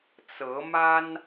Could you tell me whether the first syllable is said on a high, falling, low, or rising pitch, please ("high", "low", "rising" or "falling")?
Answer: rising